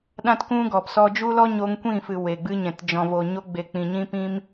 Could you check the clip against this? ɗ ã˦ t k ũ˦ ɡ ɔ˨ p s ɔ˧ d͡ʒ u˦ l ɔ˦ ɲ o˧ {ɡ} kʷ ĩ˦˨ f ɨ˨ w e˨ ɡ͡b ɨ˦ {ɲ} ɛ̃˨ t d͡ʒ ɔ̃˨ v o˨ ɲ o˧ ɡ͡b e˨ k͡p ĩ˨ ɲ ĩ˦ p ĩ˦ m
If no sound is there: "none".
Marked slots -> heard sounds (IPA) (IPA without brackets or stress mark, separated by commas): ŋ, ɲ